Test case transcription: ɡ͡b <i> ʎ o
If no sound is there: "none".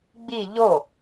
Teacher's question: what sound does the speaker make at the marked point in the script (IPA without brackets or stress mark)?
i